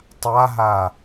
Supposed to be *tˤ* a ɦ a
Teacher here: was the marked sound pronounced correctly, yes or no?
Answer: yes